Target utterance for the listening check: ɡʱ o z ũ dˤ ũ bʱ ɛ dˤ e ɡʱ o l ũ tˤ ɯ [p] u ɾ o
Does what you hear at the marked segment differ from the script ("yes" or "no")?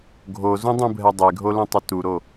yes